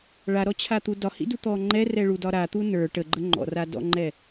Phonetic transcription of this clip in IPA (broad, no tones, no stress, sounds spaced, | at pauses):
ɭ a ɾ ɔ t͡ɕʰ a t̪ u d ɒ h ḭ d u t̪ ɔ ŋ͡ǃ ɛ r ɛ ɭ u d ɒ ɾ a t̪ u n ə˞ ʈ ə ɡ͡ǃ ə ŋ͡ǃ ɔ̰ r a d ɔ̰ ŋ͡ǃ ɛ